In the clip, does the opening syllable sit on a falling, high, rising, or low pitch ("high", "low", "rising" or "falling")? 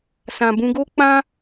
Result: low